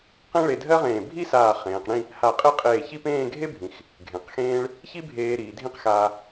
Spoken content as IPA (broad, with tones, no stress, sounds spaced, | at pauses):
q ẽ˥ ɭ e˧ dʱ ɜ˥ ʁ ẽː˧˩ bʱ i˥ s aː˧˩ χ ẽː˩˧ q ɽ ĩ˥˧ | h a˧˩ qʼ e˥˧ qʼ eː˧˩ ç i˥˧ p ẽː˥˧ ɡʱ e˥ bʱ ĩ˩˧ x | ɡʱ ẽ˩˧ q x ẽː˥ ɭ | ç i˥ bʱ eː˧ ɾ iː˩˧ dʱ ĩ˥˧ q x aː˧